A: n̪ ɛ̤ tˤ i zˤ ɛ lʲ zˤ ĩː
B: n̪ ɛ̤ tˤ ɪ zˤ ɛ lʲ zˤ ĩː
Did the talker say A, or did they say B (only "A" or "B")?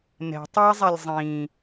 A